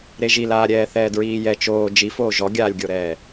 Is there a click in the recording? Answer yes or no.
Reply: no